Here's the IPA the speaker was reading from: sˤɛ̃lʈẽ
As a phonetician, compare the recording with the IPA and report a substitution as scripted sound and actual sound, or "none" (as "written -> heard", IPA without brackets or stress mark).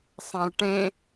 ɛ̃ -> æ̃